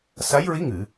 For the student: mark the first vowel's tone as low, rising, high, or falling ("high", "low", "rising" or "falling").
rising